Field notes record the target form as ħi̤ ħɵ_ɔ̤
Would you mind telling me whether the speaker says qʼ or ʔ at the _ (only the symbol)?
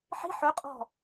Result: qʼ